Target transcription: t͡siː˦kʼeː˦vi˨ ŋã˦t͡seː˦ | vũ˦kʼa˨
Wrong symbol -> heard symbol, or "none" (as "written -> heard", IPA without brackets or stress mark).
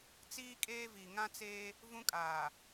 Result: a˨ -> aː˨